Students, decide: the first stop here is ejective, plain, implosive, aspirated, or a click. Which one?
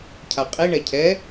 aspirated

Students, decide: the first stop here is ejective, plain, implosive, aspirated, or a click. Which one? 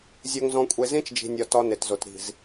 ejective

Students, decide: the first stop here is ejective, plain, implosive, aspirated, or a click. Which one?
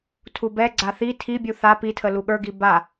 aspirated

